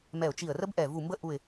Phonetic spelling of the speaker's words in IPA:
m ɛ˧˩ ʊ̯ t͡ʃ i˧˩ ə̯ r ə˥ b ʔ ɛ˧˩ v u˧˩ m b ə˥˧ ʔ u˧˩ ɪ̯

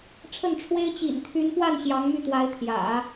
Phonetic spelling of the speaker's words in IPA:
ʈ͡ʂʰ ə˥˩ n ʈ͡ʂʰ w e˥ ɪ̯ t͡ɕ ḭ˨˩ n t̪ʰ y˧˥ n p w a˥˩ n ɕ j ɑ˧˥ ŋ m y˥˩ t̪ w a˧˥ ɪ̯ t̪ʰ j ä̰˨˩˦

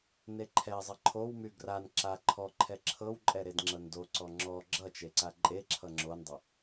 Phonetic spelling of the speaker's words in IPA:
n e ǃʰ ɛ zˤ ʌ ǃʰ o w m y ɡ r a n ǁ a ǃʰ ɔ ǃʰ ɛ ǁʰ ɤ w ǃʼ ɛ ɾ e d ŋ͡ǁ ɤ n d o ǀ ɔ ŋ͡ǁ ɔ ɡ͡ǁ ʌ t͡ʃ e ǀ a ǃʼ e ǁʰ ʌ ŋ͡ǁ o n dˤ ʌ

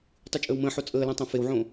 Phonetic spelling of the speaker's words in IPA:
tˤ y t͡ʃʼ əː w m ə̃ː ħ o t͡sʼ əː l ɛ̃ tˤ ẽ f e w ʕ õ

